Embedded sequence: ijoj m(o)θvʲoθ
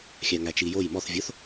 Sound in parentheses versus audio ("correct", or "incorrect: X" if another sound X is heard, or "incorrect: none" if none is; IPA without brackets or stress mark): incorrect: ɔ